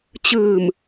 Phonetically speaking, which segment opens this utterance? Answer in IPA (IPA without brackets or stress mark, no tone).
t͡ɕ